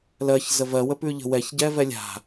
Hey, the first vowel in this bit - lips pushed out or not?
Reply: no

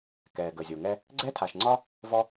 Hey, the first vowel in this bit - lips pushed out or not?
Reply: no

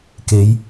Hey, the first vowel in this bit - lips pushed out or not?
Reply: no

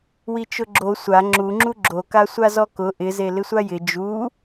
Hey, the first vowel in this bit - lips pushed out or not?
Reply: no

